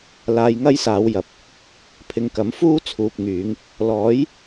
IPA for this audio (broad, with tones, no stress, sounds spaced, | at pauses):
l aː˧ j ŋ ɐ˥ j s aː˨˧ w j ɐ˨ p̚ | pʰ ɪ˨ ŋ k ɐ˨˥ m f uː˥ t͡sʰ uː˨ p̚ ŋ yː˨˧ ŋ | l ɔː˨˥ j